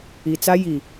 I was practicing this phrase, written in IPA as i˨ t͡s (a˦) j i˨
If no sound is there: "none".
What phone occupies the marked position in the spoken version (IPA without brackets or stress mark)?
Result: a˦